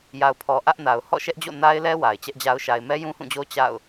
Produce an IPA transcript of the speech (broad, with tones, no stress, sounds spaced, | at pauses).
j a˨ ʊ̯ pʰ ɔ˨ ʔ ä˦ ʔ n a˨ ʊ̯ h ɔ̰˦˨ ʃ ɛ˦ ʔ d͡ʑ o̰˦˨ n a˦ ɪ̯ l ɛ˦ w a˨ ɪ̯ t͡ɕ ɛ˦ ʔ d͡ʑ a˦ ʊ̯ ʃ a˨ ɪ̯ m ɛ˦ j ũ˦ h ũ˦˨ d͡ʑ o˦ t͡ɕ a̰˦˨ ʊ̯